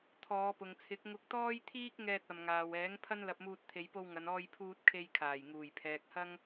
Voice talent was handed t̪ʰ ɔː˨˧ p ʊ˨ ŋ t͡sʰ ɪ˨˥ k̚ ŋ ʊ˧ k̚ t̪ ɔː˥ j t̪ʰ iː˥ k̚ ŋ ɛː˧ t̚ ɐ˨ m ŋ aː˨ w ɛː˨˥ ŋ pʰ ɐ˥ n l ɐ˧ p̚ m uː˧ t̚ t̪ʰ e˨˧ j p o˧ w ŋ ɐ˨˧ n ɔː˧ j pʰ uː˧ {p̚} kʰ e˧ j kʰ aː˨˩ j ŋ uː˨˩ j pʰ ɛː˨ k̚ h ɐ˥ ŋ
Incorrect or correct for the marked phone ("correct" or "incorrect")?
incorrect